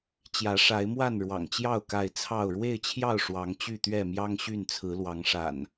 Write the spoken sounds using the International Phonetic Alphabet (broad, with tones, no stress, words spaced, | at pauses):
t͡ɕjä˨˦ʂa˨˦ɪ̯mwa˥˨n ɻwɑ̰˨˩ŋt͡ɕjɑ˥˨ʊ̯ ka˥˨ɪ̯ t͡sʰɑ˥˨ʊ̯ ɻwe˥˨ɪ̯t͡ɕʰjɑ˥˨ʊ̯ ʂwɑ˨˦ŋt͡ɕy˥˨t̪ɥɛ˥˨ mjɑ˦ŋɕy˥˨nt͡sʰɹ̩˨˦lwɑ˨˦ŋ ʂa̰˨˩n